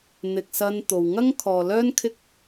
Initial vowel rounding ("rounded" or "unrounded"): unrounded